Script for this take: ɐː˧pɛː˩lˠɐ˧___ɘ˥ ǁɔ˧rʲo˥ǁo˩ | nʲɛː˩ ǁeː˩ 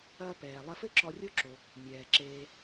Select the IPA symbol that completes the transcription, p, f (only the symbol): f